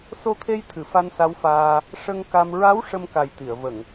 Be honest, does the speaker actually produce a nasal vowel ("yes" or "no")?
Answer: no